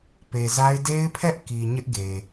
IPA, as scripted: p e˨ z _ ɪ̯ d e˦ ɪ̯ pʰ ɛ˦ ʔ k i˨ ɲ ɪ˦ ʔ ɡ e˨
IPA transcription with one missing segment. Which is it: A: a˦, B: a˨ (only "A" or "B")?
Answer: A